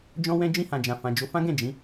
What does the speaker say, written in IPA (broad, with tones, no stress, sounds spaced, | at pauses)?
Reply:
d͡ʒ ɔ̃˧ w ɛ̃˧ d͡ʒ ĩ˧ h ã˨ d͡ʒ ã˨ f ã˨ d͡ʒ o˨˦ f ã˦ ɡ ɛ̃˦˨ d͡ʒ ĩ˨˦